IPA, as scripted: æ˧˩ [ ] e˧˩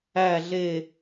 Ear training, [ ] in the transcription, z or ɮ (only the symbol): ɮ